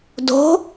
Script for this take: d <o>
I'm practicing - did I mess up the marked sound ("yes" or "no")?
yes